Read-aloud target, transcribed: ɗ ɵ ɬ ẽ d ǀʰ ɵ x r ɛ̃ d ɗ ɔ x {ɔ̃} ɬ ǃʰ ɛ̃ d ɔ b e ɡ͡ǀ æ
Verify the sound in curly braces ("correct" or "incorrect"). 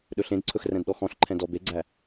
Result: correct